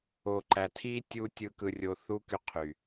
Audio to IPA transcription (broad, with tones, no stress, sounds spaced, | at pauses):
o˨ ǃ æ˨ tʰ i˦ tʲ u˦ tʲ ɯ˧ k ɯ˧ rʲ o˧ θ u˦ k y˧ qʰ y˨